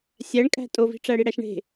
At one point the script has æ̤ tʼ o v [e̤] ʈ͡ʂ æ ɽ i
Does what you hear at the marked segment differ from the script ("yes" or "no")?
yes